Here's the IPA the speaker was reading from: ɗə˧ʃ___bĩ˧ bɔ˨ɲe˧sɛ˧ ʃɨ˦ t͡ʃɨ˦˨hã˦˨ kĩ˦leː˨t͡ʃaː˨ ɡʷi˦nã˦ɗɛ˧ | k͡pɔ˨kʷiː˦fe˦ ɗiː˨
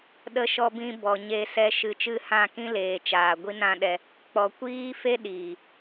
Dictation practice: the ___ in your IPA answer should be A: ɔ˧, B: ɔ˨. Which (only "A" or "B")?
A